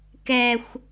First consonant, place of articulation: velar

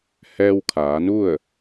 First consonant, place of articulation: glottal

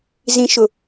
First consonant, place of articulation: alveolar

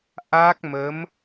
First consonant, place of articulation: glottal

